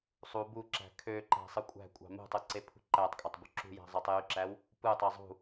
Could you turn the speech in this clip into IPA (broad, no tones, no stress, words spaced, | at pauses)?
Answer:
sˤu buǁæ̤ kʰøǃæ̤ sˤɯkʷʼæ̤kʷʼɑ̤ mṳtˤɯ ǀepʰṳǃætˤkʼɑtˤ bṳǁṳjæ̤ zˤɑtˤjyǁæw | pɯtˤe zˤṳ